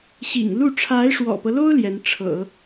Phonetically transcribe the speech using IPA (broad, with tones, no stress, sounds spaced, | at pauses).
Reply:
ɕ ḭ˨˩ ŋ l u˥˩ ʈ͡ʂʰ a˧˥ ɪ̯ ʂ w ɔ̰˨˩ p ɤ˦ l o˥ ʊ̯ l j ɛ˧˥ n ʈ͡ʂʰ ɤ̰˨˩˦